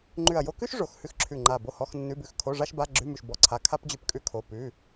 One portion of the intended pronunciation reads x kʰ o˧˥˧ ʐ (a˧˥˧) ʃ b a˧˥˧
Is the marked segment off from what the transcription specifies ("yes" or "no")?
yes